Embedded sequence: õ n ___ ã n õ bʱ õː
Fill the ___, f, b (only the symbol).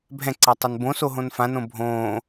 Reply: f